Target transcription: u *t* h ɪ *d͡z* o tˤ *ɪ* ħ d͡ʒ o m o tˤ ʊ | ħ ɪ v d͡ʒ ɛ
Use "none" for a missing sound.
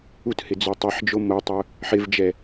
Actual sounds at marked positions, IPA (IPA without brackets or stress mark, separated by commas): t, d͡z, i